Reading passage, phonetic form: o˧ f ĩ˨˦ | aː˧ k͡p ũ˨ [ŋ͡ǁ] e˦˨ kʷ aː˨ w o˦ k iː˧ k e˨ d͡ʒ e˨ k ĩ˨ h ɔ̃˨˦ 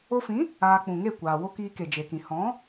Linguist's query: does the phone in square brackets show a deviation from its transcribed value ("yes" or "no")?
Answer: yes